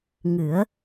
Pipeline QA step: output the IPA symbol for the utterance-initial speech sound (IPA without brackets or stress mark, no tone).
ŋ